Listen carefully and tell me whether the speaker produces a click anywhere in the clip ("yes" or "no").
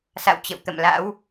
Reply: no